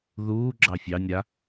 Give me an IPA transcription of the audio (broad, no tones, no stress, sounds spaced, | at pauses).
ð uː ɡ͡ǁ ɑ fʲ ɑ nʲ ɾ a